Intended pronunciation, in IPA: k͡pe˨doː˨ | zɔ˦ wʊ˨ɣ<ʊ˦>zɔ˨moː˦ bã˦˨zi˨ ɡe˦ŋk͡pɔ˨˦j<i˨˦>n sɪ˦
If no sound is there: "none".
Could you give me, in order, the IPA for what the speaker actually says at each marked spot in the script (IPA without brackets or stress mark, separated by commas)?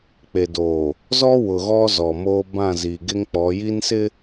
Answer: ɔ˦, i˦